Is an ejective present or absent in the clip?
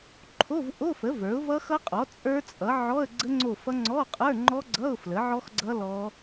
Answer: present